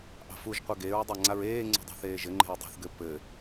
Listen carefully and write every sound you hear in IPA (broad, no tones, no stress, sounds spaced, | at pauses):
ʔ ɑ̤ f u ʒ qʷ ɘ ɡ e ɹ dˤ a ŋ͡ǀ a ɹ eː ŋ͡ǀ ṳ dˤ a̤ θ eː ʒ ɘ ŋ͡ǃ e̤ ɹ dˤ ṳ θ ɡ ɘ p ɘ